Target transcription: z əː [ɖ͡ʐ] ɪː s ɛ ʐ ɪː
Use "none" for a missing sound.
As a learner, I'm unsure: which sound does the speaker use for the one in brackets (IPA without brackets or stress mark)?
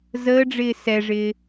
ɖ͡ʐ